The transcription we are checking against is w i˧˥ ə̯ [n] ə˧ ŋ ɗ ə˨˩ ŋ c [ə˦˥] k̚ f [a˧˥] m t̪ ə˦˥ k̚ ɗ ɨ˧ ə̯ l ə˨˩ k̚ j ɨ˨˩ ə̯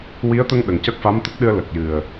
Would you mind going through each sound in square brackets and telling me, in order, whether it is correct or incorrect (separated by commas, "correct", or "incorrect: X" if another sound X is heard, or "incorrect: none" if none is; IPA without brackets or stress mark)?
incorrect: t̪, correct, correct